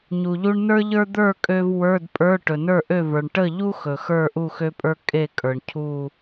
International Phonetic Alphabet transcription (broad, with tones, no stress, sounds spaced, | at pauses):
ɲ u˩ ʎ u˧ ɳ n ə˞˥ ʎ ə˞˥ d̪ ə˞˥˨ kʼ ø˧ v w ə˞˧˥˧ d pʼ ə˞˧˥˧ ʈ ɵ˩ n ə˞˥˨ ʔ ø˥˨ v ə˞˩ ɳ ʈ ə˥˨ ʎ u˥ x ɵ˩ x ə˞˥˨ ʔ u˥˨ x ø˥ pʼ ə˞˥ kʼ e˥˨ kʼ ə˞˩ ɳ cʰ u˥˨